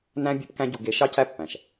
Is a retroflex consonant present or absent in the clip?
absent